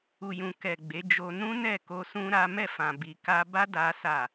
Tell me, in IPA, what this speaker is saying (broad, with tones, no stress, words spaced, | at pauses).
u˨jũ˨kɛ˨ ɡ͡be˨˦d͡ʒo˧ nũ˦nɛ˦˨ko˧ sũ˦ɾa˦ mɛ˦˨fã˨bi˨ ka˧ba˦ da˦sa˦˨